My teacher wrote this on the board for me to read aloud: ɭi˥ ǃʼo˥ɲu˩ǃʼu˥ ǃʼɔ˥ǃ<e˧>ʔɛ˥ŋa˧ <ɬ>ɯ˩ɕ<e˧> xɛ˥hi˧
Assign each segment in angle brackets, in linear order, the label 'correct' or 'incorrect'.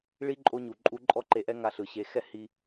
correct, correct, correct

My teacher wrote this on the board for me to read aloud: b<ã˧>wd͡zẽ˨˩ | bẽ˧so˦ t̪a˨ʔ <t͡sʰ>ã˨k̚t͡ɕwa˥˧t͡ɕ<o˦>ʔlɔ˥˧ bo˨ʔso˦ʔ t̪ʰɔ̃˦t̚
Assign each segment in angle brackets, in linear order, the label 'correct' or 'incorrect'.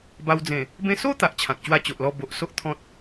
incorrect, incorrect, incorrect

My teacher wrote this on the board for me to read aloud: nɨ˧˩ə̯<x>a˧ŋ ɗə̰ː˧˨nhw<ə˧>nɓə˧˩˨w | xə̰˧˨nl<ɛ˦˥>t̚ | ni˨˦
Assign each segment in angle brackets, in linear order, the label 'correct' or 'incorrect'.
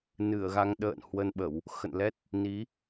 incorrect, correct, correct

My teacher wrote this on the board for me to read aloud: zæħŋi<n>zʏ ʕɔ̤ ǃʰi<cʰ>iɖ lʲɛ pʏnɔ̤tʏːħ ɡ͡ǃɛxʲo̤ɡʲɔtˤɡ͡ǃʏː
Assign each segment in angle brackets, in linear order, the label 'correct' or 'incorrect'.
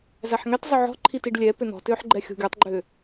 incorrect, incorrect

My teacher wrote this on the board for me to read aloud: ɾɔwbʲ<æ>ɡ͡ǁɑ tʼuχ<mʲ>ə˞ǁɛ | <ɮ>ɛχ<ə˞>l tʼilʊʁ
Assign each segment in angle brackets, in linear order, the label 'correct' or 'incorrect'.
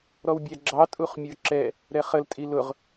correct, correct, incorrect, incorrect

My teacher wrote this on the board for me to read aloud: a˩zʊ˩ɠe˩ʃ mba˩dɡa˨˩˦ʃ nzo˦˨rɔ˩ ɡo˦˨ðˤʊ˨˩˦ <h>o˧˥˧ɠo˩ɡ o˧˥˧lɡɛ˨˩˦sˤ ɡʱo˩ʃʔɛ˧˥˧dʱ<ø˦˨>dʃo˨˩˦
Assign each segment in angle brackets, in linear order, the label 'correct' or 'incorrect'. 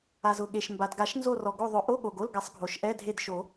incorrect, incorrect

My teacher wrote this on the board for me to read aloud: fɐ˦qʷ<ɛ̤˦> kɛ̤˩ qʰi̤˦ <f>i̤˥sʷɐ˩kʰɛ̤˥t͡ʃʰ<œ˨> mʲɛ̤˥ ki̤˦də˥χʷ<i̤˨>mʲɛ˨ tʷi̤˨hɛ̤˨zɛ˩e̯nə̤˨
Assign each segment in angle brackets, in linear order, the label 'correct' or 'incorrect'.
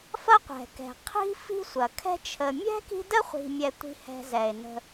incorrect, correct, incorrect, correct

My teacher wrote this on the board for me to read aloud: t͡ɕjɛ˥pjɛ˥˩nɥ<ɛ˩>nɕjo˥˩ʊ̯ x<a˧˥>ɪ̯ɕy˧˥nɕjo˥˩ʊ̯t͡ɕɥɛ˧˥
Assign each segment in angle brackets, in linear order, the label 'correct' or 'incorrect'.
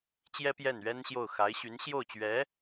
incorrect, correct

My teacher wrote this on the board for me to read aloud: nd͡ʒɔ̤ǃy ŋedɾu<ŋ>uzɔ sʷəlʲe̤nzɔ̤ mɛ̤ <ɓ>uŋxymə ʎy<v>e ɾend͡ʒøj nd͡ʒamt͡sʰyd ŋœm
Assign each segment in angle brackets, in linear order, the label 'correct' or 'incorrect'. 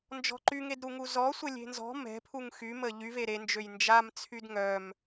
correct, incorrect, correct

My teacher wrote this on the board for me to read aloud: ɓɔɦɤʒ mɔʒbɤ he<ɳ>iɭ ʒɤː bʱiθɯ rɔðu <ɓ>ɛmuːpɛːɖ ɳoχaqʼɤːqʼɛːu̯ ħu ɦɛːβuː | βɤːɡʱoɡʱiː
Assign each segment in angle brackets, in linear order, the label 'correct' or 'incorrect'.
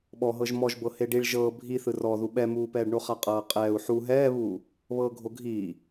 incorrect, correct

